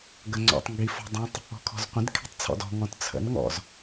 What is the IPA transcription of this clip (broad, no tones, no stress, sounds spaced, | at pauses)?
ɡ ə ŋ͡ǀ ɔ̰ tˤ ŋ ɡ i f ɔ̤ dˤ ĩ tˤ | ɔ̤ kʰ ɔ̤ z qʷ ə̃ d kʰ i̤ tˤ t͡sʰ ɔ̰ d ɔ̤ ŋ ɔ̃ t t͡sʰ ə̰ n ŋ ɔ̰ z